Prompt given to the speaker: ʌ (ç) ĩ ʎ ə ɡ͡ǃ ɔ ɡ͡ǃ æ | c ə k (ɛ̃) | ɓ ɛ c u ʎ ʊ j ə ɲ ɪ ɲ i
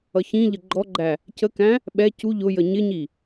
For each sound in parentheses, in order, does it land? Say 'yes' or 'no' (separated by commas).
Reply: yes, no